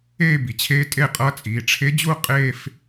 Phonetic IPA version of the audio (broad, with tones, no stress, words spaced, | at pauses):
eː˥˧bi˩t͡ɕʰeː˧˥ tʼe˥˧qʼʌ˧˥ t͡sʼiː˩ʈ͡ʂʰe˧˥d͡ʑu˥˧ qʼeː˥˧f